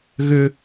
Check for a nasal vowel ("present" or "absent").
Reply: absent